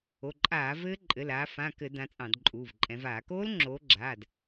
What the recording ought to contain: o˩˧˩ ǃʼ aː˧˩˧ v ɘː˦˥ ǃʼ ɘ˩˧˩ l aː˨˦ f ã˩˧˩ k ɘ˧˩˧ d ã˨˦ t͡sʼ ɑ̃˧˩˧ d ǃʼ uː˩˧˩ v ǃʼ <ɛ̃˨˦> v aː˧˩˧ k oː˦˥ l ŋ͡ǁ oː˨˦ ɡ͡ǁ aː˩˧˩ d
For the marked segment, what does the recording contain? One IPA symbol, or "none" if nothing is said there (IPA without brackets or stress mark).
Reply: ɛ̃˨˦